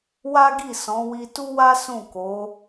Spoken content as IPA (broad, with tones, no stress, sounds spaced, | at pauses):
w a˦ ɡ i˦˨ s ɔ̃˨˦ w i˧ t u˦ w a˦ s ũ˦˨ k o˨˦